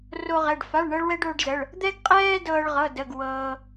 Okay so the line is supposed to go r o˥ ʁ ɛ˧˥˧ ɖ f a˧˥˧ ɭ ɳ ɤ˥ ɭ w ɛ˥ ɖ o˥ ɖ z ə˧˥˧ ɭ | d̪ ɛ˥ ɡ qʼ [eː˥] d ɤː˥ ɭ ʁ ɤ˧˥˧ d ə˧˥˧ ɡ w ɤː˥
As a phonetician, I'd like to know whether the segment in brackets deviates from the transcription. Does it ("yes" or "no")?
yes